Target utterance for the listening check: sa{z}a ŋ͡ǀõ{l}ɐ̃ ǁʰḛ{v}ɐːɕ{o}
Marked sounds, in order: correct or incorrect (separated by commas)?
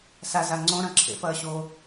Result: correct, incorrect, incorrect, incorrect